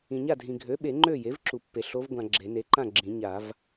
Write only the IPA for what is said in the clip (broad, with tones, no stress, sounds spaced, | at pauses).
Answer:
ĩ˨ ɲ a˥˨ dʱ ĩ˨ ɡʱ ø˩˥ ɓ e˨˩˦ ŋ͡ǃ ø˥˨ j e˩˥ v ǁ u˨ pː e˨ ɬ o˧˥ v ɡʷ ã˨ ɡ͡ǁ e˨˩˦ n e˩˥ ǃ ã˥˨ ɡ͡ǁ ĩ˨˩˦ ɲ a˨˩˦ v